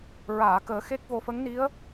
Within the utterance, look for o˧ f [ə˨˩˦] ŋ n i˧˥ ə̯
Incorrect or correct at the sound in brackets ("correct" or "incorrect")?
incorrect